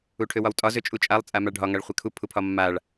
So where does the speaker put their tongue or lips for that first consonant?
retroflex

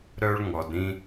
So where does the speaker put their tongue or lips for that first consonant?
tongue tip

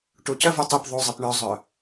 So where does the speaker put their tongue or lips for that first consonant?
retroflex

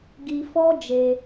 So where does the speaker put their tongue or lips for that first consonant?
velum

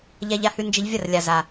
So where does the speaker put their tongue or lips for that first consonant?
palate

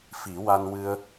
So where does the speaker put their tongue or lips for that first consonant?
lips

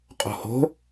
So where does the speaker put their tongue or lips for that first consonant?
uvula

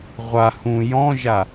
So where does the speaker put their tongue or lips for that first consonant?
uvula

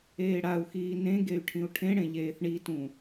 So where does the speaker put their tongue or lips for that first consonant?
retroflex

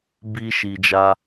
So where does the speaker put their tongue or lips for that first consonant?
lips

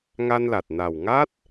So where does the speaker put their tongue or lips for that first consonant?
velum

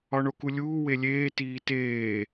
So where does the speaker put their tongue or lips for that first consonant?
retroflex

